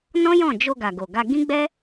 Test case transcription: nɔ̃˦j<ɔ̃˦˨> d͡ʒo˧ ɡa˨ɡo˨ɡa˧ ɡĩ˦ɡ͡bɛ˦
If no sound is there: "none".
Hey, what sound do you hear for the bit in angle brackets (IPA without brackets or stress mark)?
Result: ɔ̃˦˨